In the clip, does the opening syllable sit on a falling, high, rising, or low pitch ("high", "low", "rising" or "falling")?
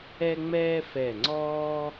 high